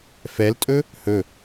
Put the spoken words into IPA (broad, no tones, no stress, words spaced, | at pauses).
fɛltʼɵ | hɵ